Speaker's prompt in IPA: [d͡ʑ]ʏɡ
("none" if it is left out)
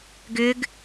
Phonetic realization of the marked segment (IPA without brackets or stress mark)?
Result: ɡ